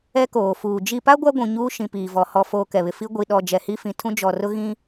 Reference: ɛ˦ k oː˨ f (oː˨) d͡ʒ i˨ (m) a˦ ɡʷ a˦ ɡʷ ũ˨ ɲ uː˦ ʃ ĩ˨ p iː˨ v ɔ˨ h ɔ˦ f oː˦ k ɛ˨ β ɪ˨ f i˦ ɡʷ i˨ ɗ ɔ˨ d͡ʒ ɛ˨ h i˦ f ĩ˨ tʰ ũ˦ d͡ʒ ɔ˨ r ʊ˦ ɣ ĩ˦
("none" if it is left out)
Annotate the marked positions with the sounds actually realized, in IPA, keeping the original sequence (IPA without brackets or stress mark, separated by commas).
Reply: uː˨, p